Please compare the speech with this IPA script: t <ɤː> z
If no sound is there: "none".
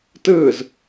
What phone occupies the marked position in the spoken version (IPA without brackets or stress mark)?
ɯː